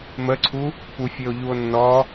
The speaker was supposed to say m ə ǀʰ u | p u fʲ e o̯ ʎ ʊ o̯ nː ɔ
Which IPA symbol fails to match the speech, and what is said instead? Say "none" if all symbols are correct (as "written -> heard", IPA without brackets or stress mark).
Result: ʊ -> u